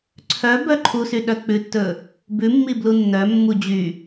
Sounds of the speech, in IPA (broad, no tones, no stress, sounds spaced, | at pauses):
ǀʰ œ b œ ǃʰ u s y ɗ œ k͡p ʉ tː ɵ | b ʉ mː i b l u nː œ mː u d͡ʑ y